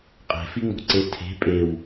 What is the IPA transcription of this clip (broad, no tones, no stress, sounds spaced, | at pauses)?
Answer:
qʼ e̤ f i ŋ͡m o̤ ǀ e tʰ e̤ pʼ e w